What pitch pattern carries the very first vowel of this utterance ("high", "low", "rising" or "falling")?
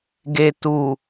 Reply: low